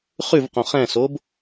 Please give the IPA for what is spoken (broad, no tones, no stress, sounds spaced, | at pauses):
χ ʉ v q õ χ ɛ̃ s o b